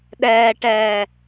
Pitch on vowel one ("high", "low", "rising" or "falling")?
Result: low